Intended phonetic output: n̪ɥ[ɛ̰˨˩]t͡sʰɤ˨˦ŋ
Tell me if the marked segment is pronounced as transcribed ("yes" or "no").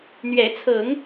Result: no